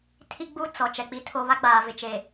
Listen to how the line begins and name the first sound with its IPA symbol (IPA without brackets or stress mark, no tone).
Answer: tʰ